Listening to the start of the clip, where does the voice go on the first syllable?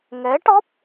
rising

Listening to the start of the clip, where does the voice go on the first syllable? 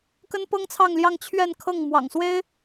high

